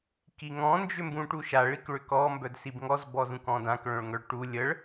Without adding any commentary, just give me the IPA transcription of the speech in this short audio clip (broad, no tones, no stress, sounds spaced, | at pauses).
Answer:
k i ŋ ɔ̃ n d͡ʒ ʏ m b ũ ʈ u ʃ a ɭ i k ɭ ʏ k ɔ m b œ d s i b ŋ ɔ z b ɔ z ũ k ɔ̃ d ã k ɭ œ̃ ɭ ŋ œ ɭ ʈ u lʲ ə ɭ